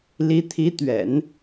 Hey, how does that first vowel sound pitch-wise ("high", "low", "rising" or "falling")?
rising